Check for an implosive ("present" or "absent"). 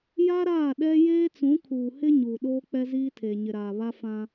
present